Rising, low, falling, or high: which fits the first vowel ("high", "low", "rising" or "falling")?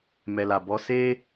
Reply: low